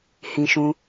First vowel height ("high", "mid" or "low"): high